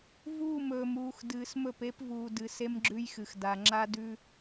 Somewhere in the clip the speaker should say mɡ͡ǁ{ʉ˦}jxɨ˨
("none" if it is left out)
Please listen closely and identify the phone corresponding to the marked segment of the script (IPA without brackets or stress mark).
ʉ˦